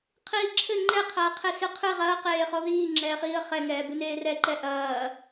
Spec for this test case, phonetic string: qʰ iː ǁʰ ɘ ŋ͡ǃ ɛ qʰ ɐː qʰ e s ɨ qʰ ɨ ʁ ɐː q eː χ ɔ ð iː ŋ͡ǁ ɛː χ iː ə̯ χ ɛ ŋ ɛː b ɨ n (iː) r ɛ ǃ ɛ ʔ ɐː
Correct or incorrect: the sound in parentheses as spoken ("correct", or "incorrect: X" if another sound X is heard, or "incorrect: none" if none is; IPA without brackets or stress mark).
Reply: incorrect: eː